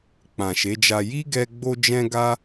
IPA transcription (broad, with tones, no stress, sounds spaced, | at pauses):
k͡p ã˨ ʃ e˨˦ d͡ʒ a˧ j i˦ ɡ ɛ˧ ɡ͡b o˦ d͡ʒ ɛ̃˦ ɡ a˦